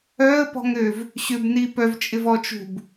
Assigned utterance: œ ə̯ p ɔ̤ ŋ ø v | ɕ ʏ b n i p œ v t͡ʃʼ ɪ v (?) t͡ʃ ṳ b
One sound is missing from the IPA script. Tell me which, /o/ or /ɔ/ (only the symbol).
ɔ